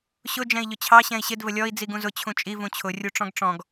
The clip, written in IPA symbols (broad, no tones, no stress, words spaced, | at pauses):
ɕʊ d͡ʒɛ̃i̯ʎʊt͡ɕʰɑ ɕɛ̃i̯ɕɪd vəlʲɔi̯ d͡ziɡũzʊ t͡ɕʰũt͡ʃʼi vũt͡ɕʰʊ rʲuʈ͡ʂɔ̃ɡʈ͡ʂɔ̃ɡ